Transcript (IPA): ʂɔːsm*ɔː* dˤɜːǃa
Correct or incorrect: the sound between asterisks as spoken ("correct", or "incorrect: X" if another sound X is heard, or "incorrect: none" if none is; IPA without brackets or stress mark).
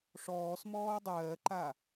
correct